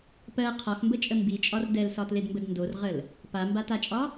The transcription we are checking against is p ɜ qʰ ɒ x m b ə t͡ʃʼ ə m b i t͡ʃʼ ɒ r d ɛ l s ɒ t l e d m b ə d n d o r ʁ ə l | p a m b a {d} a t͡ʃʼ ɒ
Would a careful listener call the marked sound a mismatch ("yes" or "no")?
yes